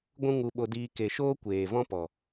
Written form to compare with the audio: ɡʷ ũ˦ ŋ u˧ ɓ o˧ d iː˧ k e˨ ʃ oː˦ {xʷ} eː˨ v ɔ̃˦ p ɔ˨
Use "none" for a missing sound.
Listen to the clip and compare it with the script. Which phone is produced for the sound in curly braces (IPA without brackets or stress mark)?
kʷ